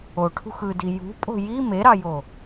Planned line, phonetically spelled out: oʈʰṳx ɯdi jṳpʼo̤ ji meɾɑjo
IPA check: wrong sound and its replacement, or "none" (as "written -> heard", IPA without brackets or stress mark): none